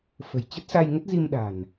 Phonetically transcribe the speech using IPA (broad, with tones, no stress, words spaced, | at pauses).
fə̤˨˩jt͡ɕə˦˥t̚sa˧jŋə˦˥t̚ zi˧mɗa̤˨˩n